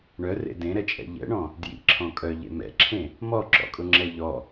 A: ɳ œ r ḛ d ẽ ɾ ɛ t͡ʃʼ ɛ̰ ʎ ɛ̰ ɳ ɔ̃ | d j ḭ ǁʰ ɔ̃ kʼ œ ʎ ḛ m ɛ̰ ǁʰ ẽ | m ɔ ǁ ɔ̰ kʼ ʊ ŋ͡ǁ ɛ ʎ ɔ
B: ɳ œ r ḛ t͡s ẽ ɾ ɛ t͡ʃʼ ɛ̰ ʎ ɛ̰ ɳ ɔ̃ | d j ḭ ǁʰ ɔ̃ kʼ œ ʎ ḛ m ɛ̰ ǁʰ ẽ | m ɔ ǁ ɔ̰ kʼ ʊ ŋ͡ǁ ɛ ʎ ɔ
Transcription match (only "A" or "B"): A